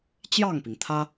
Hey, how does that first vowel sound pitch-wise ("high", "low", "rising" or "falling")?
falling